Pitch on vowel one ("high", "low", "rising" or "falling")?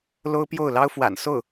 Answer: high